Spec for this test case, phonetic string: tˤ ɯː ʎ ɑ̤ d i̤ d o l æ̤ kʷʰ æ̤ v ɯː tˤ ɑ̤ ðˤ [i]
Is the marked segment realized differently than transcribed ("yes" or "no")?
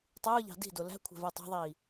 yes